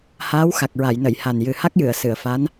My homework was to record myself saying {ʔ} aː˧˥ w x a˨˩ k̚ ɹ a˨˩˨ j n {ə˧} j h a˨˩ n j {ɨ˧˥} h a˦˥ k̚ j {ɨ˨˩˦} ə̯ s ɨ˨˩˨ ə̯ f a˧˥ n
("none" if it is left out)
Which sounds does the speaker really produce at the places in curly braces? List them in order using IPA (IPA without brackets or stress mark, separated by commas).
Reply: h, ə˨˩˨, ɨ˨˩, ɨ˨˩˨